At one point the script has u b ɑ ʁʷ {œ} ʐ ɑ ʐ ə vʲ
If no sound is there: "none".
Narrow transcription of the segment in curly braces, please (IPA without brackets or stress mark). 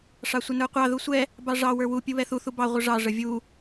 ə